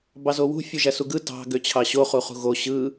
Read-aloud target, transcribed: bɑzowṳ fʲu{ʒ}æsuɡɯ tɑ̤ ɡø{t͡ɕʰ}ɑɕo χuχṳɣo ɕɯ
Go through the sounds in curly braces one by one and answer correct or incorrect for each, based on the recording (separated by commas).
correct, correct